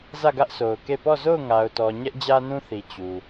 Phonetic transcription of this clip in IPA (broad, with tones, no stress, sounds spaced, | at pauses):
z ä˦˨ ɡ ä˦ ʔ sʰ o˨ ʊ̯ k e˦˨ p ɔ˦˨ z o˦˨ ʊ̯ ŋ a˨ ʊ̯ t ɔ˨ ɲ ɛ˦ ʔ d͡ʑ ä˦ n ũ˦ θ i˨ t͡ɕ u˨